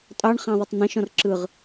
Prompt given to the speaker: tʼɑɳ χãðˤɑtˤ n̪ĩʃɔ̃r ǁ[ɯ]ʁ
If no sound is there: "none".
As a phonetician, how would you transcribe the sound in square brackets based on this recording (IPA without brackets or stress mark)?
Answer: ɯ